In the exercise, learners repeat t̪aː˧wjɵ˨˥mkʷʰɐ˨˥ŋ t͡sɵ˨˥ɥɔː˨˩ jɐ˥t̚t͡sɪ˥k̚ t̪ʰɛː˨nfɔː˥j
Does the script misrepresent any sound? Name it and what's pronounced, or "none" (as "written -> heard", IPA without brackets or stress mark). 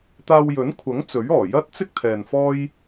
m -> n